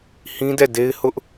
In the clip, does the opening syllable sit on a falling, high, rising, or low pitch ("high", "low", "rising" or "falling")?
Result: high